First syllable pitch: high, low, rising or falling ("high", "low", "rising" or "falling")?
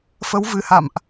rising